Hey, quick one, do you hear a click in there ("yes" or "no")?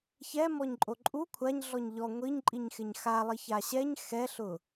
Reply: yes